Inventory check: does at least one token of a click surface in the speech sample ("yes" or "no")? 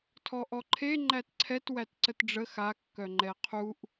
yes